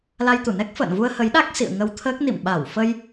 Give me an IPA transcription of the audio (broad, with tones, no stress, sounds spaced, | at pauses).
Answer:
l a˧ j t̪ u˧˩ n ɛ˦˥ k̚ f ə̰ː˧˨ n v u˧ ə̯ h ə˨˦ j ɗ a˦˥ k̚ s ḭ˧˨ ə̯ ŋ ə˧ w t̪ʰ əː˦˥ k̚ n ḭ˧˨ m ɓ a˧˩ w f ə˧ j